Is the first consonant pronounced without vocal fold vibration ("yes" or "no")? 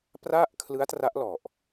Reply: yes